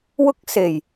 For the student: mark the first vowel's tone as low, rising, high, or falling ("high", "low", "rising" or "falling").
high